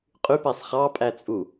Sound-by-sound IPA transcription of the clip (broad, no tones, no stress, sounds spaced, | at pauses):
qʼ y p æ sˤ χ ɑ pʼ æ t͡sʼ u